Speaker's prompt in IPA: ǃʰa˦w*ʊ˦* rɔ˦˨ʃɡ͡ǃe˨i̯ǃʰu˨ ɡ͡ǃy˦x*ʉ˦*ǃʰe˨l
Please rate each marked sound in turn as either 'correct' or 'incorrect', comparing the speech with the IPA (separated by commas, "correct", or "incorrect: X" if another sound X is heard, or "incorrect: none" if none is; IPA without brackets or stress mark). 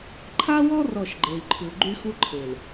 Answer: incorrect: ɔ˦, incorrect: u˦